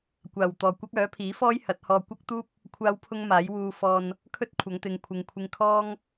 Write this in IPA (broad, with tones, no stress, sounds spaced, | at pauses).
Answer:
kʷ aː˨˩ w t̪ ɔː˨˩ kʷ ɐ˥ k̚ œː˨˥ pʰ iː˨˥ f ɔː˥ j h ɐ˨˥ t̚ h ɔː˧ kʷ ɐ˥ k̚ t̪ uː˥ p̚ | kʷʰ aː˥ w pʰ ʊ˥ ŋ m aː˨˥ j w uː˧ f ɔː˧ n | kʰ ɵ˥ t̚ kʷʰ ɐ˨˧ ŋ t̪ ɪ˨ ŋ kʷʰ ɪ˨ ŋ kʷʰ ɪ˧ ŋ kʰ ɔː˥ ŋ